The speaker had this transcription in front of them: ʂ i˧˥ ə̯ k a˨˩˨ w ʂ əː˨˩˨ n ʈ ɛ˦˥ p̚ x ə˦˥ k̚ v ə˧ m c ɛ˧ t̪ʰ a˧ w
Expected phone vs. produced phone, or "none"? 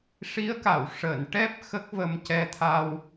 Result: none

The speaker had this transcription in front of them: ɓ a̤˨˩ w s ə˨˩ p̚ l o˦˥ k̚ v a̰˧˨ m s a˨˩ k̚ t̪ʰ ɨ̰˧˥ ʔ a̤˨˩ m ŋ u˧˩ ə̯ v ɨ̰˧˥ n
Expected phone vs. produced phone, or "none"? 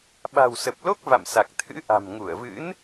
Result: none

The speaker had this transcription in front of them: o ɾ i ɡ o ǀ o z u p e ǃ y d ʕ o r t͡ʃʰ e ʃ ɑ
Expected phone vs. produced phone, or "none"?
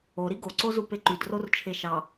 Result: ʕ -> r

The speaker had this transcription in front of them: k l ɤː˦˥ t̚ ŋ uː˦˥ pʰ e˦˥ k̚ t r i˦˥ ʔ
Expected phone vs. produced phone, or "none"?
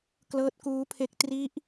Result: ŋ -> k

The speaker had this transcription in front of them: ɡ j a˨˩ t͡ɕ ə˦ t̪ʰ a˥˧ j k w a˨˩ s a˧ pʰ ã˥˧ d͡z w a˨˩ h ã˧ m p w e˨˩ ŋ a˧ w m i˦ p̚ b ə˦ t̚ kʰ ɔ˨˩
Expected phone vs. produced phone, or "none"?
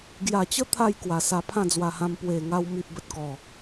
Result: kʰ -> k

